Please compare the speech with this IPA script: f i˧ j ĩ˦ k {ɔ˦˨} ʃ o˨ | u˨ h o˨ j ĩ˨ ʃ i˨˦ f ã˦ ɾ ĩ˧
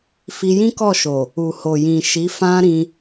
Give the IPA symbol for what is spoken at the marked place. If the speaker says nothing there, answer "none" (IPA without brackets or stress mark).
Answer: ɔ˦˨